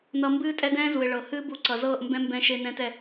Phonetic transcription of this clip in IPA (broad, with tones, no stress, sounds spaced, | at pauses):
n ʌ˧ m b ɨː˦ tʼ ɛ˦ d ɛ̃ː˦ z u˨ ɪ̯ ɭ ɤ˨ h ɨː˦ b u˧ ǀ ʌ˨ z ɤː˦˨ ʔ m b ɛ̃˦ m b ɛ̃˦ ʃ e˦ n ɛ̃ː˦ t ɛ˧